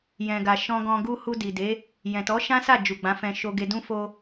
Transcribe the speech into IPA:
j ɛ̃˨ ɡ a˨ ʃ ɔ̃˧ ɡ ɔ̃˧ ɡ u˦ h u˧ d i˨ d e˨˦ | j ɛ̃˨ t ɔ˨˦ ʃ ã˦ s a˦˨ d͡ʒ u˨ ɡ͡b ã˨˦ f ɛ̃˧ ʃ o˧ ɡ e˧ d ũ˦ f o˧

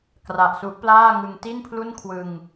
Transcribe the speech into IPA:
k r a˨˩ ʔ s u˦˥ ʔ p l aː˥˩ ŋ ɯ˧ ŋ t i˥˩ n pʰ l u˥˩ n kʰ w ɯ˧ ŋ

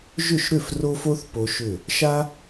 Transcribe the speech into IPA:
ʒ ʏ˥˨ ʃ ɾ ʏ˥˨ f r o˦ f o˦ θ p o˦ ʃ ʏ˥˨ | ʃ a˦

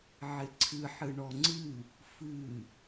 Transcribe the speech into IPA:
ʕ ɪ ǀʰ ɨ ħ ɨ ɳ ɔ ŋ͡ǀ ɨ | f ɨ

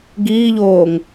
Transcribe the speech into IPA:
ɡ iː ʎ oː ŋ

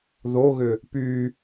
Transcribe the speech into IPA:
ð o ɣ ʏ | p y

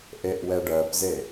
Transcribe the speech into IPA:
ʔ e ʔ w ɛ ɖ ɜ p z e

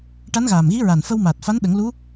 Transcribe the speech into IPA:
ʈ a˧˥ n ɣ aː˨˩ m ɣ i˧˥ ɹ a˨˩ n f ə˧ w m aː˨˩ t̚ f a˧˥ n ɗ ə˨˩˦ ŋ l u˧˥

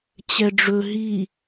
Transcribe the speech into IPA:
t͡ɕ ɛ ɖ͡ʐ ɵ ɦ i

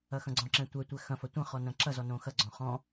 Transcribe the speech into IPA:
ɐ x ɐ̃ ɡ͡ǀ ɔ̃ ǁ ɛ̃ tʷ ɛ tʷ ɛ x ɐ̃ f ɐ tʷ ɐ̃ χ ɔ n ɐ̃ ǁ ɐ z ɔ n õ x ɐ ɡ͡ǀ ɔ̃ χ ɔ̃

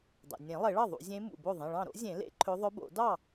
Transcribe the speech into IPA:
dˤ ḛ˩ nʲ ẽ˨˩˦ lˠ e˨˩˦ ɭ ɑ˥˩ ðˤ ṵ˨˩˦ zʲ ẽ˧˥ m ṵ˩ b o˥˩ ðˤ ẽ˩˧˩ ɭ ɑ̃˥˩ ɾ o̰˧˥ zʲ ẽ˨˩˦ l ḛ˨˩˦ ǃʰ ɵ˧˥ ðˤ œ˧˥ b o̰˨˩˦ d ɑ˥˩

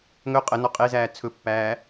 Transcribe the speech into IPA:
ŋ ɵ qʼ ə n ɔ qʼ e z æː t͡sʰ ɵ pː æː

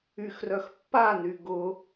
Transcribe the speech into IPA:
y x r œ x pː a n y ɡ ʊ

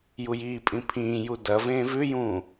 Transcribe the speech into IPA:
j u j iː pʼ ĩ pʰ ĩː j u d ɐ v ẽ v ʉ j ũː

